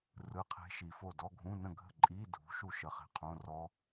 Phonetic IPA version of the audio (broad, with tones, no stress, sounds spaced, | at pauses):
r ɯ˧˥˧ qʰ e̤˦˥ ʃ i˨ f o˥˨ d ɔ˧˥˧ ɡʱ ũ˧˥˧ n ə̃˥˨ ɡʱ ə̤˥˨ ǃʼ i˧˥˧ dʱ ṳ˨˥ ʃ u˥˨ ʃ ə˨˥ χ e̤˨ qʰ õ˧˥˧ r ɔ˦˥